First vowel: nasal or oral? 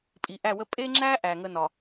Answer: oral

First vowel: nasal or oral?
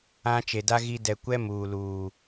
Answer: nasal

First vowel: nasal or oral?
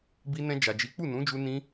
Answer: oral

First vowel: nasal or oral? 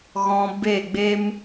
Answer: nasal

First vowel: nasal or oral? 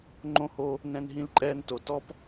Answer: nasal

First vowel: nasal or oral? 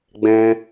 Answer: nasal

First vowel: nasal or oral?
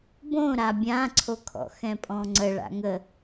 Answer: nasal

